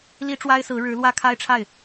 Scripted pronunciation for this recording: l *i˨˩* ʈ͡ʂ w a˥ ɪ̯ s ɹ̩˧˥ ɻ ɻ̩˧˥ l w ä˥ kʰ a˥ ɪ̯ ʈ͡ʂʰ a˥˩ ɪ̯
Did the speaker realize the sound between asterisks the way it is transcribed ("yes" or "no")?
no